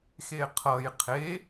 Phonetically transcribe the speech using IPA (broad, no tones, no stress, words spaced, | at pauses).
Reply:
xeqʰʌj qʰe